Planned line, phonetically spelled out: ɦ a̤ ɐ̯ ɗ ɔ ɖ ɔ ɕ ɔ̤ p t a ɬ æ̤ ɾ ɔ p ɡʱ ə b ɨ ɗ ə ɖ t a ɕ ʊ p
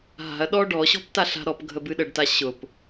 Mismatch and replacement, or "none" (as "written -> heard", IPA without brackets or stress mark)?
æ̤ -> a̤